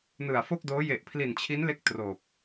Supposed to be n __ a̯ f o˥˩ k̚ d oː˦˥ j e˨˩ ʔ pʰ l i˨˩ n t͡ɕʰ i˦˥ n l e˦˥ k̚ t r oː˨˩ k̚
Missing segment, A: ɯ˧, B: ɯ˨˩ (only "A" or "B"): B